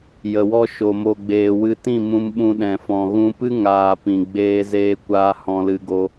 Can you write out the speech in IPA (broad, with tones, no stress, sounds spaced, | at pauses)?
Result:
j ə˨ w ɔ˧ ʃ o˨ m o˨ ɡ͡b eː˨ w ɨ˧ t ĩ˦˨ m ũ˧ m ɓ ũ˧ ɗ ɛ̃˨ f ɔ̃˨ ɣ ũ˧ p ɨ˦ ŋ aː˨ p ĩ˨ ɡ͡b eː˧ z eː˧ kʷ aː˧ h ɔ̃˧ l ɨ˧ ɡ o˧